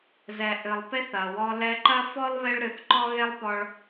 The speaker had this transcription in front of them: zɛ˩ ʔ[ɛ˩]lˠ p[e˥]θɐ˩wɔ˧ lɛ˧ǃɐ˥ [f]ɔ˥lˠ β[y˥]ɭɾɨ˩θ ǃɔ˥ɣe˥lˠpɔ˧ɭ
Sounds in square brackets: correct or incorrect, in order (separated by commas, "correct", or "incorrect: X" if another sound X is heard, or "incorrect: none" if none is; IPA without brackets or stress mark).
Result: incorrect: ɨ˩, correct, correct, incorrect: e˥